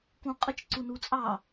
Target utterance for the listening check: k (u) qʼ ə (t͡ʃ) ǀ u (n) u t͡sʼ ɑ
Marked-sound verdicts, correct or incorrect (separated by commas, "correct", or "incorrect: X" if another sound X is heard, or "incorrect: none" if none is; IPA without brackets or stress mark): incorrect: ũ, correct, correct